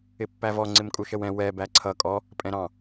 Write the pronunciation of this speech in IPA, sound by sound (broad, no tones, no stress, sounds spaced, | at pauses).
ɪ pː æ v ɔ ŋ͡ǀ ɪ m kʼ u ʃ ə w ɛ̃ w ɛ b æ ǀʰ ʌ kʼ ɔ | pʼ ɛ̃ ɾ ɑ̃